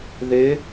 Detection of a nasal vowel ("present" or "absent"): absent